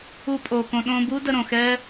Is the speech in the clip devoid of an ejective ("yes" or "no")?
no